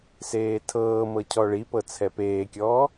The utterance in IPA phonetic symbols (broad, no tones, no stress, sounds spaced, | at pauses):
s eː tʰ ɤː m ɤ cʰ ɔ ɭ i p ɤ t͡sʰ ɛ p eː kʲ ɔː